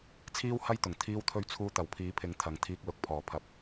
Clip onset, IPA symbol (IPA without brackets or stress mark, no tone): t͡sʰ